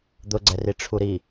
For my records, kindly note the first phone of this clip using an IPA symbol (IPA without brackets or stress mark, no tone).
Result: d̪